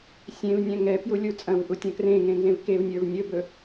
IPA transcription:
sʲ ẽ v nʲ ɛ̃ ŋ ɛ p j u lʲ u t͡sʼ ɐ̃ v ʔ u tʲ ɐ̃ k r ẽ ŋ ẽ n z ẽ v k e v nʲ ə˞ v nʲ ɵ b ɵ

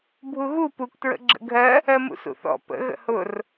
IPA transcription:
bʱ u ɣ u p u k t ɹ ə̰ ɡ͡ǁ ə̰ ɡʱ ɜ | ɜ m ṵ s ṵ θ ɔ̰ p ə̰ ɣ ə̰ h ʊ r

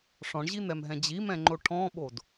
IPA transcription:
ʂ ɔ̃ ɳ ʑ i n̪ ɛ m ɦ ɛ̃ d͡ʑ i m ɛ̃ ŋ͡ǃ o ʈʰ ɔ̃ ɓ o d

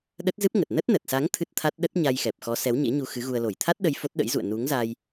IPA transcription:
ɗ ə˦˥ t̚ z ɨ˦˥ p̚ ŋ ə˨˩ t̚ n ə˦˥ t̚ n ə˨˩ t̚ s a˨˦ ŋ t̪ʰ ɨ˦˥ t̚ t̪ʰ a˦˥ t̚ ɗ ə˦˥ t̚ ɲ a˧ j x ɛ˨˩ p̚ x ɔ˨˦ s ɛ˨˦ w ɲ ḛ˧˥ ɲ u˧ x ɨ˨˦ ɣ u˧ ə̯ l o˧˩ j t̪ʰ a˦˥ t̚ ɗ ə˧ j f o˦˥ t̚ ɗ ə̰˧˥ j z ṵ˧˨ ə̯ n u˨˦ ŋ z a˧ j

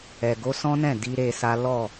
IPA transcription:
ɛ˨ ɡ o˧ s ɔ̃˦ n ɛ̃˦˨ d i˧ ɾ e˧ s a˦ l ɔ˦˨

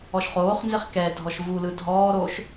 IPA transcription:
ɔ ʃ χ oː χ n z e χ k ɛ dʱ ɔ ʃ v u l ɯ dʱ ɔː ɾ oː ʃ

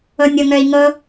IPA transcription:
ɤ nʲ ɤ ŋ œ i̯ ŋ ɤ

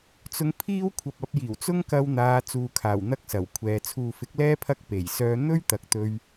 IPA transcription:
t͡s ʊ˧ ŋ pʰ iː˥ w kʷʰ ɐ˨ p̚ ɐ˨˥ p̚ j iː˨˩ w t͡s ʊ˥ ŋ k ɐ˧ w n̪ aː˨˧ t͡s uː˨ kʰ aː˨˩ w n̪ ɐ˥ k̚ s ɐ˨˩ w kʷʰ ɛː˨˧ t͡sʰ uː˨ f ɪ˨˥ k̚ l ɛː˥ pʰ ɐ˥ k̚ p e˨˩ j s œː˧ n̪ ɵ˥ ɥ t̪ ɐ˨ k̚ t̪ ɵ˧ ɥ

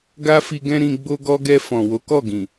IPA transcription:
ɡ a˦ f i˧ ɡ ɛ̃˦ ɾ ĩ˧ ɡ͡b o˧ ɡ ɔ˧ ɡ ɛ˧ f ɔ̃˨ w o˨˦ k ɔ˦˨ ɡ ĩ˨

